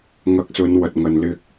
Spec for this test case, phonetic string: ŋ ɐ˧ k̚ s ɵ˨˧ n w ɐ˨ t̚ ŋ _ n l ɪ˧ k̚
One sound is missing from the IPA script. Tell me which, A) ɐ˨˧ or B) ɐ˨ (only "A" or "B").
B